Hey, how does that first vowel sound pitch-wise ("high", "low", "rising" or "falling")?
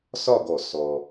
falling